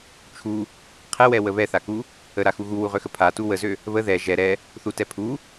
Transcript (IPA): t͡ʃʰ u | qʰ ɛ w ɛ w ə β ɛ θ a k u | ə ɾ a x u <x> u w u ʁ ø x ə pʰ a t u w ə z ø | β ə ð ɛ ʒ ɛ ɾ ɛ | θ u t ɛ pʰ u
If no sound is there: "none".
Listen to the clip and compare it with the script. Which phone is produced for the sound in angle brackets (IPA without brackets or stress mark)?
ɣ